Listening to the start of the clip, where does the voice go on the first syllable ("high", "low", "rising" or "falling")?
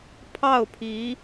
falling